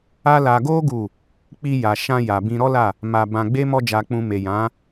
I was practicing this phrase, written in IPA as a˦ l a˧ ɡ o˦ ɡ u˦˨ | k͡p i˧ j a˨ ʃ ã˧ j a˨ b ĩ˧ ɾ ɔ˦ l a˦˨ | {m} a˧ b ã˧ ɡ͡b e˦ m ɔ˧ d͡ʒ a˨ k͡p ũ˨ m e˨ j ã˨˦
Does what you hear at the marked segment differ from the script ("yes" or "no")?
no